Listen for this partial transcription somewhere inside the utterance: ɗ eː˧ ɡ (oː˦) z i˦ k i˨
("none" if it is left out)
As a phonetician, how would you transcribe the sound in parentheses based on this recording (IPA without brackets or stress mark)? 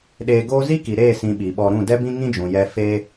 oː˦